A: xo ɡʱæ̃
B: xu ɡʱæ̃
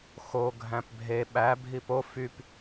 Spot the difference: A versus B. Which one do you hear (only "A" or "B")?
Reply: A